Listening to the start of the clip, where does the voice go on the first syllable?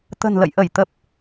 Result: low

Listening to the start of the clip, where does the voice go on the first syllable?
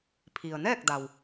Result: low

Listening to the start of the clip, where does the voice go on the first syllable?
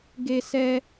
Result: high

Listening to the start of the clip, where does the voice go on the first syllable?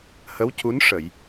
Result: rising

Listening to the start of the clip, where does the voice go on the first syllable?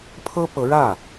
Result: high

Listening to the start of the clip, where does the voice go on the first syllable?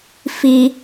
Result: low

